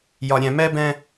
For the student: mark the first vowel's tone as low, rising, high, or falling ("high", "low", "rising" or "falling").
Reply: low